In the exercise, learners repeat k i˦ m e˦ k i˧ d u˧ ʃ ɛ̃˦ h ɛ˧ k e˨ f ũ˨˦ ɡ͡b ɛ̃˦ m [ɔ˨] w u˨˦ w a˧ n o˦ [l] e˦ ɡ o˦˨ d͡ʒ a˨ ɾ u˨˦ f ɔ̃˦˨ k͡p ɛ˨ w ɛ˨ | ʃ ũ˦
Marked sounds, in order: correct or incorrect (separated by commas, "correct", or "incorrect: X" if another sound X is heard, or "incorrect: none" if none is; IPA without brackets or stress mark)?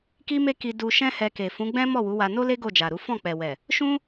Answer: incorrect: ɔ˦˨, correct